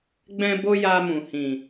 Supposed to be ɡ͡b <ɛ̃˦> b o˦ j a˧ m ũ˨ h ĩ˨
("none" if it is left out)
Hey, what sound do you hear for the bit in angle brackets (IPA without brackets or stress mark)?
ɛ̃˦